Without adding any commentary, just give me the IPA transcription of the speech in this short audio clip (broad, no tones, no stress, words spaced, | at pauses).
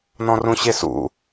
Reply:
nɔ̃rũɕesṵ